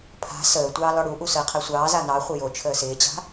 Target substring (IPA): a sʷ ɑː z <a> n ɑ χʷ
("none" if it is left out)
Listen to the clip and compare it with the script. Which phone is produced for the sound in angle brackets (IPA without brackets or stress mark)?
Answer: a